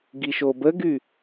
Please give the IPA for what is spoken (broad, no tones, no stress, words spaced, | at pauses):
ɡiʃobəɡy